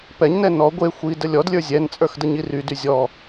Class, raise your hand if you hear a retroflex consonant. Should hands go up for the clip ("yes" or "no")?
no